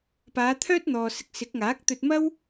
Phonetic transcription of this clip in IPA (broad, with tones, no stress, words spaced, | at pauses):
paː˨˧t̪ʰœː˥t̚n̪ɔː˨ sɪ˧k̚sɪ˨˥k̚ŋaː˨˥k̚ t̪ɵ˧t̚mɐ˥w